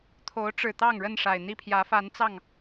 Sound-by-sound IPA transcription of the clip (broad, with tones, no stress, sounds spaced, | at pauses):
t̪ʰ o˨˦ ʊ̯ ʈ͡ʂ ɻ̩˨˩ t̪ ɑ˥˨ ŋ ɻ ə˥˨ n ʂ a˨˩ ɪ̯ n̪ i˥˨ pʰ j ä˨˦ f a˨˦ n t͡s ɑ˥˨ ŋ